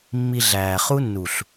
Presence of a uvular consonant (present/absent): present